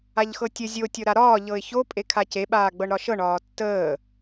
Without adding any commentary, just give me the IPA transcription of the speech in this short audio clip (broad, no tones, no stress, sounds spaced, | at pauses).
a ʎ x ɤ tʲ ə zʲ o tʲ ɤ ɾ a ɾ ɒː ʎ ɤ ɪ̯ ç o pʼ e kʰ a c e ɓ aː ɡ͡b ɤ ɳ ɾ ɒ ʃ ɤ ɳ ɒː tː əː